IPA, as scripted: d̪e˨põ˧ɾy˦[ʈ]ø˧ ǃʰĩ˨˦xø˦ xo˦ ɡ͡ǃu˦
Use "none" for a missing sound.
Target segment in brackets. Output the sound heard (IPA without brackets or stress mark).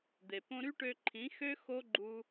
ʈ